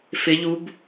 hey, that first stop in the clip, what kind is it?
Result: plain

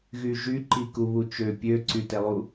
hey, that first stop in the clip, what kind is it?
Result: click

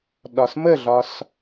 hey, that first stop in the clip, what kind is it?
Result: implosive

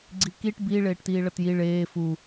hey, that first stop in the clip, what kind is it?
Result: click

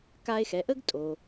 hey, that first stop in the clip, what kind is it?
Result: plain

